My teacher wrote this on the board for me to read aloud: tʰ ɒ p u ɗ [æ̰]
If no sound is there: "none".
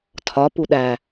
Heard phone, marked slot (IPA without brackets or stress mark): æ